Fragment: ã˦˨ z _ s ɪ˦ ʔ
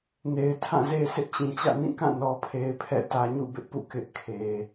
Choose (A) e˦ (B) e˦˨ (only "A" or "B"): A